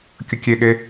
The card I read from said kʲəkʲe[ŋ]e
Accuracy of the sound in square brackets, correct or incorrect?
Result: incorrect